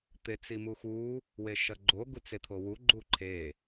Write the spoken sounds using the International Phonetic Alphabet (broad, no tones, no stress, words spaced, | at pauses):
t̪et͡simuxu | weʃɐɡ͡ǃo ɡut͡set̪ʰowu ɡ͡ǃuǃʰe